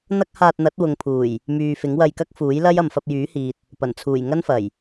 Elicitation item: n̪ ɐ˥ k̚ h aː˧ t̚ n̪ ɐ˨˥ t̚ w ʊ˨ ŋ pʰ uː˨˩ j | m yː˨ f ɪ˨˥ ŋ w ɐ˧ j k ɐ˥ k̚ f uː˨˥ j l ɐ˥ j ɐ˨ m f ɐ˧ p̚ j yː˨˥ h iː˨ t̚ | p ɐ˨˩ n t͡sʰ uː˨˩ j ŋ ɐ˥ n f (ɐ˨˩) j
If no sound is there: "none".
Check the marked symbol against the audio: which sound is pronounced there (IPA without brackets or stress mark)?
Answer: ɐ˨˩